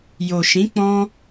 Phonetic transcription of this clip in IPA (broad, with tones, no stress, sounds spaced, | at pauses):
j o˨ ʃ ĩ˨˦ k͡p ɔ̃˧